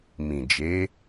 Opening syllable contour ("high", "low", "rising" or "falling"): low